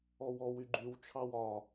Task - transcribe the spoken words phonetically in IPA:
ɔwɔw yɡ͡ǃyw t͡ʃʰɑwɒ

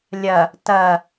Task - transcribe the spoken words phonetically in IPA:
lʲɐ | tɐ

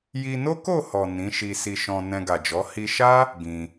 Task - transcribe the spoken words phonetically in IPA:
ji˧no˦ko˦˨hɔ˨ nĩ˨˦ʃi˧ si˧ʃɔ̃˧ nɛ̃˧ɡa˨d͡ʒɔ˨˦ hi˧ʃa˦ | ɡĩ˧

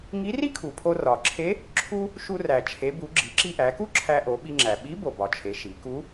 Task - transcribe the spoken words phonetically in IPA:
ŋi˧˥ri˥kʰu˩pʰo˧ rɒ˩ǁʰe˧˥ | ǁʰu˥ | ʃu˧ræ˩ t͡ʃʰe˩˧bu˩˧ ɡ͡ǁi˩˧ǁi˧ʔæ˩˧ku˥ ǁʰæ˧ʔo˩˧ɓi˧ ŋ͡ǁæ˩ɓi˧˥ bo˩bɒ˩t͡ʃʰe˩˧ ʃi˩˧ku˧˥

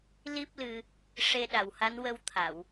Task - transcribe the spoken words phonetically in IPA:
li˦˥p̚lɨ˧ | ʂe˧ɗa˨˩wha˧˥n wə˧wt̪ʰa˨˩˨w

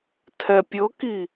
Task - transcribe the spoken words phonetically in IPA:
tʰɛpʲɤki

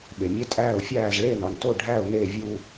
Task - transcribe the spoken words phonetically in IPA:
ɓe˩mʲe˦tʼæː˦˨ʊ̯fʲæː˦˨z ɭe˦˨nɒ˩nto˦˨ ɖʱæ˦˨ʊ̯ne˦˨vʲu˦˨

